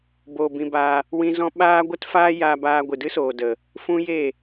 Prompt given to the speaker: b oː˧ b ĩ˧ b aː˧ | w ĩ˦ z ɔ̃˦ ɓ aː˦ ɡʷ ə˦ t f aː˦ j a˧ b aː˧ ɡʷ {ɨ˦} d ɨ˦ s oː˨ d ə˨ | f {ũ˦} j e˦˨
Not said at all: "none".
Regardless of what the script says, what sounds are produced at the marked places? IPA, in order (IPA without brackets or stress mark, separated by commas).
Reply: ɨ˨, ũ˦